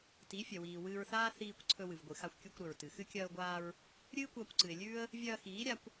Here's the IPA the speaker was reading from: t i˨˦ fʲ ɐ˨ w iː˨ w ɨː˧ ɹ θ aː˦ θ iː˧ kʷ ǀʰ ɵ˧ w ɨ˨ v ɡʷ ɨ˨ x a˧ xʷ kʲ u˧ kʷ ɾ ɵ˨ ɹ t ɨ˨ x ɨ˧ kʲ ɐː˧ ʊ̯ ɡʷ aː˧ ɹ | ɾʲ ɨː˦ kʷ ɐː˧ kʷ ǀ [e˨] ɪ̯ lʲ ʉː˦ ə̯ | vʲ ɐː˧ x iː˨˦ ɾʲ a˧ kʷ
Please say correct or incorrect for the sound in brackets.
incorrect